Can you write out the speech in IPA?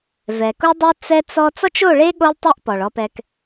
v ɛ˨ k o˦ dˤ o˦ t͡s ɛ˦ t͡s ɔ˦ t͡s ɔ˦ t͡ʃ o˦˨ ɭ e˦ ɠ o˦ lˠ tˤ ɛ˦ ʔ p ɔ˨ ɭ ɔ˦ p ɛ˦ k

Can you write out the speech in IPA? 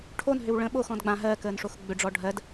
ʈʰ o n ɦ ʏ w ɭ ə̃ ɓ o x ɔ̃ d ɡ͡b ã ɦ ɜ k əː n ʂ o x ɡ͡b ʏ ɖ͡ʐ ɔ ɖʱ ɜ d

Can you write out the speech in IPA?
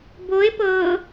b o e̯ p ɤ

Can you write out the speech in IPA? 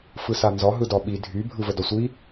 f ɯ s a n z ɒ ɦ ɯ d ɒ ɓ i dʱ y bʱ ɯ v ə d ɒ sʷ i

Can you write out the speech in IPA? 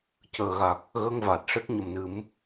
c əː˨˩ ɣ a˨˩ k̚ | ɣ ə˧ ŋ v aː˨˩ t̚ ʂ e˦˥ k̚ ɲ ə˨˩˨ m n ɨ˨˩˦ m

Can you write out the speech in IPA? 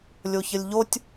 lʲ o ç ə lʲ ʎ o tʲ

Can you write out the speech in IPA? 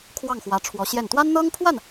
kʰ w ɑ˥˩ ŋ x w ä˧˥ ʈ͡ʂʰ w ɔ˧˥ ɕ j ɛ˥˩ n t̪ w a˥ n n̪ ɤ˥ ŋ pʰ w a˥˩ n

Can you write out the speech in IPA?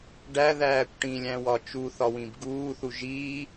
ɖ æ ð æː kʷ ʈ ĩ lʲ æ̃ w ɒ t͡ʃ u θ ɒ w ĩ b ɡ uː θ u ʒ i

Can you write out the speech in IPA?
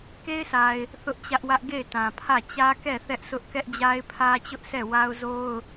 k e˦ ɪ̯ s a˨ ɪ̯ | θ ʊ˦ ʔ t͡ɕ ä˦ ʔ w ä˦ ʔ ɡ e˦˨ ɪ̯ t ã˨ pʰ ä˦˨ t͡ɕ ä˦ k ɛ˦˨ θ ɛ˦ ʔ s ʊ˦ ʔ k ɛ˦ ʔ d͡ʑ a˦ ɪ̯ pʰ ä˦ t͡ɕ ʊ˦ ʔ s ɛ˦˨ w a˦ ʊ̯ z o˦ ʊ̯

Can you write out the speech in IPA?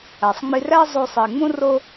æ˩ sˤ ŋ͡m i˧ r æ˥ zˤ o˧ sˤ i˩ ŋ͡m ũ˥ r o˥

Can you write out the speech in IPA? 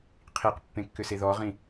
qʰ i q pː ẽ kː ʏ s e ð ɔ ʁ ĩ

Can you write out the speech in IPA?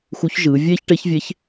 x u˧˥ ç ʒ ɯː˩˧ vʲ eː˥ ç ʈ e˧˥ ç vʲ e˧˥ ç

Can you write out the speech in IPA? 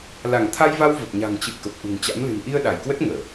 l a˧˩ ŋ t̪ʰ a˧ j v a˧ w v ə˨˩ p̚ ɲ a̤˨˩ ŋ t͡ɕ ɨ̰˧˨ ə̯ k ə˨˩ p̚ ʔ ṳ˨˩ ŋ t͡ɕ a̰˧˥ m l ɨ̤˨˩ n ʔ i˧ ə̯ ɗ a˧˩ j k w ə˦˥ t̚ ŋ əː˧˩˨

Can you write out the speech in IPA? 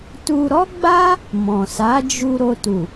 t u˧ ɾ ɔ˦ ɡ͡b a˦ | m ɔ̃˨ s a˨˦ d͡ʒ u˧ ɾ o˧ t u˨

